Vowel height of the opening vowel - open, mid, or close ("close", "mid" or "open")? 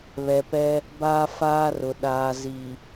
mid